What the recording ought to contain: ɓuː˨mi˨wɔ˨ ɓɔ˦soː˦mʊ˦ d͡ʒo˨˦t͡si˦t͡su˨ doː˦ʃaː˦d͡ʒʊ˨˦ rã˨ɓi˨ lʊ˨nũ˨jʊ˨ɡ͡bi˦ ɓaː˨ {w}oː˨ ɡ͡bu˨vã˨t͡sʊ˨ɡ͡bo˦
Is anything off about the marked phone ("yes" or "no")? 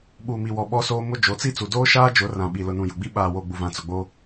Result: no